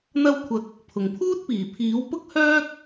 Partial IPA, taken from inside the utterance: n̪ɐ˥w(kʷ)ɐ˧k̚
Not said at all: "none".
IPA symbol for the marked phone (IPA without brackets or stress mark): kʷʰ